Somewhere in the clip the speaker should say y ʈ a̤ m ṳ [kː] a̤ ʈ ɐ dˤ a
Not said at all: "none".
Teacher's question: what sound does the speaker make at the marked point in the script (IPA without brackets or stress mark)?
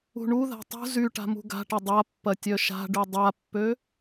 ɡ